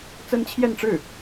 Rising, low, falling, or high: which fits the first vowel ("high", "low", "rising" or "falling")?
high